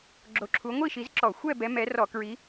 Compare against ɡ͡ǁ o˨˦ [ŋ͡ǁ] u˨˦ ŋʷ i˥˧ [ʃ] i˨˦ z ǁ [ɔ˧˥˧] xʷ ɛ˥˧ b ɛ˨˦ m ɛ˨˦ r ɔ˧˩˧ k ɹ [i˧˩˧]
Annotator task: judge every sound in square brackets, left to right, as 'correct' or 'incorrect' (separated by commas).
incorrect, correct, incorrect, incorrect